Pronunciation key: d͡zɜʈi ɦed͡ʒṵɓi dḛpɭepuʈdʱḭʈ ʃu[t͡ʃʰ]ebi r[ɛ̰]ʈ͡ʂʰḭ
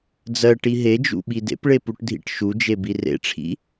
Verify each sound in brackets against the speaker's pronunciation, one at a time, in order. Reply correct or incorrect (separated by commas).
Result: incorrect, incorrect